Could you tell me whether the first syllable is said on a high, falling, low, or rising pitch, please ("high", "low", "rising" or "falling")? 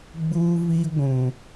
high